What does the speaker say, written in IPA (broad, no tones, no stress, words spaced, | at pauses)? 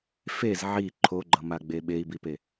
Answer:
fez ʕi ǃʰoɡ͡ǃʌmaɡ͡be ɓei̯bipe